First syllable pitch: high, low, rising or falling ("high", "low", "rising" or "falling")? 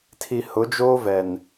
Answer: low